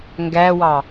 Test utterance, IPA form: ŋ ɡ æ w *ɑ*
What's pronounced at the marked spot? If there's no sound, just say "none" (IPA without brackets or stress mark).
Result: ɑ